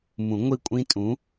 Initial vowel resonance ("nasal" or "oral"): nasal